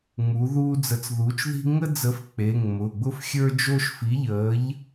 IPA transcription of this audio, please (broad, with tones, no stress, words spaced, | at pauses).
ŋ͡mu˨˥ðuː˥ d͡zə˨˥t͡sðuː˨˥t͡ʃ ði̤˥ ŋə˥d͡zə˨˥f k͡pe˩˧˩ŋ mʊː˩˧˩ɡ͡bʊ˥f xʲə˞˥d͡ʒo˥ʃ fi˨˥ʎəː˨˥ʎ